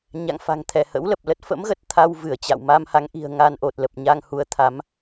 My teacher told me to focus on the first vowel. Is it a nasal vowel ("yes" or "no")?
no